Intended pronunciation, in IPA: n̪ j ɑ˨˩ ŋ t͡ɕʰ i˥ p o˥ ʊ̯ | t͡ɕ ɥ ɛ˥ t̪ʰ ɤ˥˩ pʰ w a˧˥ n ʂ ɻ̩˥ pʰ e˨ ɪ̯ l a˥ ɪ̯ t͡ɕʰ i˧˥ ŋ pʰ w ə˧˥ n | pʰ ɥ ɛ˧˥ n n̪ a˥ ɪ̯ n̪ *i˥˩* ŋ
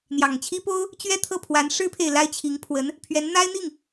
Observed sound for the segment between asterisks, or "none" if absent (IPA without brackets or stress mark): i˥˩